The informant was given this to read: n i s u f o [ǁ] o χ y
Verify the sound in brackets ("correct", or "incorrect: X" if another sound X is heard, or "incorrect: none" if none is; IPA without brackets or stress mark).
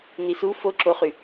correct